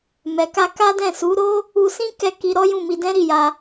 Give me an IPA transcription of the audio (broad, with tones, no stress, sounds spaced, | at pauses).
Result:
m ɛ˨ k a˧ k a˦ d ɛ̃˦˨ s u˨˦ ɾ o˦ | u˧ s ĩ˦ k ɛ˦˨ k i˧ ɾ ɔ˦ j ũ˦˨ m i˧ d ɛ̃˦ ɾ i˦˨ j a˧